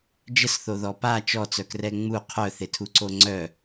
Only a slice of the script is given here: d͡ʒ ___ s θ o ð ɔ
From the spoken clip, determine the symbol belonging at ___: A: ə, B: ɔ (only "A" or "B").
A